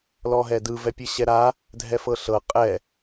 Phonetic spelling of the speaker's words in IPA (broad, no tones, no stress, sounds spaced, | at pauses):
l ɔ ɦ ɛ d ɯ v ɛ pʲ ɯ ɕ ɛ ɾ a | dʱ ɛ f ɤ ɬ ɤ qʼ ɛ